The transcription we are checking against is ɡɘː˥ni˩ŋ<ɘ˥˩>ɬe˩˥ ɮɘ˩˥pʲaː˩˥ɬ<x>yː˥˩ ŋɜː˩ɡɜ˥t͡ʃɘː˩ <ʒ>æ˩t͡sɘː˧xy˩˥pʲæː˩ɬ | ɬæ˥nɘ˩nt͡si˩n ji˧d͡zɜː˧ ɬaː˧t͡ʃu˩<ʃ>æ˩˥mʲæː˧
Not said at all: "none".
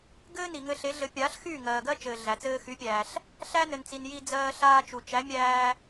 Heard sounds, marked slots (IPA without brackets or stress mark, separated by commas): ɘ˧, x, ɮ, t͡ʃ